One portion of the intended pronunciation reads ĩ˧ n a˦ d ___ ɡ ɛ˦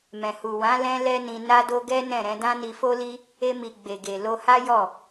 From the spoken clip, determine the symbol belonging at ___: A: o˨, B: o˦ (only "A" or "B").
B